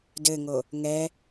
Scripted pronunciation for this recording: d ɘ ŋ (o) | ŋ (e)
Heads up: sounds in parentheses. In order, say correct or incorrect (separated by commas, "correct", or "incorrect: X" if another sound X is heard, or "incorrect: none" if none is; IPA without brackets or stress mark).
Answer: correct, incorrect: ɛ